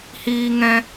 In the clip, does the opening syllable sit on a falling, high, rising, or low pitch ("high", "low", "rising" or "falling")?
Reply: high